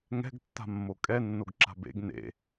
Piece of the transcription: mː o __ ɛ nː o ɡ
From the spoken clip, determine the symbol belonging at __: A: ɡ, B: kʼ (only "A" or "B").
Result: B